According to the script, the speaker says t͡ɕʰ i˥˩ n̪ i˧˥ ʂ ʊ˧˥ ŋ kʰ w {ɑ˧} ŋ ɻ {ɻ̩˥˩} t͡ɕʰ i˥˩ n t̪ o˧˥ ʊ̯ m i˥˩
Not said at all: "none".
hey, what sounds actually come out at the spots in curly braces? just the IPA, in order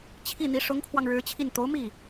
ɑ˧, ɻ̩˧˥

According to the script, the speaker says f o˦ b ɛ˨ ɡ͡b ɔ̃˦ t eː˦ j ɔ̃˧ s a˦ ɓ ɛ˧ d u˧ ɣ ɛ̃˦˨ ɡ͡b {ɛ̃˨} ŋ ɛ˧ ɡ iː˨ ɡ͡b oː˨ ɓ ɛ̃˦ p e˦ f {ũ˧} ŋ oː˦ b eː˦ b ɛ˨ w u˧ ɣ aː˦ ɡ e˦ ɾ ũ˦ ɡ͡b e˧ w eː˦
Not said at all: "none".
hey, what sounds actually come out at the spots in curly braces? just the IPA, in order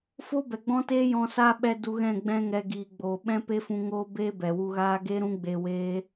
ɛ̃˦, ũ˧

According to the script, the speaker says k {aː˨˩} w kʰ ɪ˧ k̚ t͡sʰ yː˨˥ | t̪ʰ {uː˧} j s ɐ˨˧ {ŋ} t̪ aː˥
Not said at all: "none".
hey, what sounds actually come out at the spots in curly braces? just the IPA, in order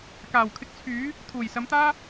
aː˨˩, uː˨˩, m

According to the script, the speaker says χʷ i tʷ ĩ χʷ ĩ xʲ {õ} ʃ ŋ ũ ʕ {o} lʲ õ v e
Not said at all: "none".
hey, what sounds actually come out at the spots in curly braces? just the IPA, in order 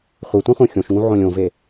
õ, õ

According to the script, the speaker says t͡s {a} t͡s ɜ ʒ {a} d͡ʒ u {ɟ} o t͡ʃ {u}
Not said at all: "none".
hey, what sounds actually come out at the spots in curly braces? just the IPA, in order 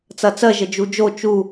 ɐ, ə, d͡ʒ, u

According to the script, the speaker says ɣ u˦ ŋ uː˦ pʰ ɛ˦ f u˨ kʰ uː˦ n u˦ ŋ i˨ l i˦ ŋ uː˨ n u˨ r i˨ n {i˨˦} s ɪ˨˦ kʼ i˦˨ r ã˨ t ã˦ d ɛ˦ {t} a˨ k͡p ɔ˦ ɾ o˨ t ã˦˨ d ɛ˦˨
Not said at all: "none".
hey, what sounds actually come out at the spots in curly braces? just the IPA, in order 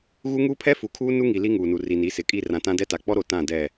i˨˦, t

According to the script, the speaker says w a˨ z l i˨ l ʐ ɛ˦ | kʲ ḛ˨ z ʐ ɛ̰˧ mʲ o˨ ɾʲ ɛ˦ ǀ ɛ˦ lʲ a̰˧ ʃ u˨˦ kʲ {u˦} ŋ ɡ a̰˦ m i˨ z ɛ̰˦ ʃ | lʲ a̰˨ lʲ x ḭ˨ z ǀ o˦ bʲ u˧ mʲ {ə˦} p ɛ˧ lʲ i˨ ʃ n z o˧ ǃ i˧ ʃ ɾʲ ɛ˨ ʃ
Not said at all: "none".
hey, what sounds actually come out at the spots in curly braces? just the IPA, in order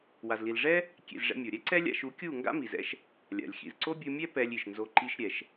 u˦˨, ɛ˦

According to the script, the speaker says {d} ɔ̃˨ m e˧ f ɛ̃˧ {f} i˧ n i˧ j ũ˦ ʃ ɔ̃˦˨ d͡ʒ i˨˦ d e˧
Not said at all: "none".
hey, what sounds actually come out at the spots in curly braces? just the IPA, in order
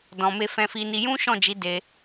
d, f

